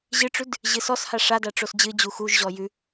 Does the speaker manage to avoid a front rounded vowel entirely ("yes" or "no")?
yes